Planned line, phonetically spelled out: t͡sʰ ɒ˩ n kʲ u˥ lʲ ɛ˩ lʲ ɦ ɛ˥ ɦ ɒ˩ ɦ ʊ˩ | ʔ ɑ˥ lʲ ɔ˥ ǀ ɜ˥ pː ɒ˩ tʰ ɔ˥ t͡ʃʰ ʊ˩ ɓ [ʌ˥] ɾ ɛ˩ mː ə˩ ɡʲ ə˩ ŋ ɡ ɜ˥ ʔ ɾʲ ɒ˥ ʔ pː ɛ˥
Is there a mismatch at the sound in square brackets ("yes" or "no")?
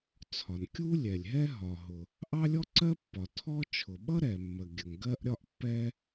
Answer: no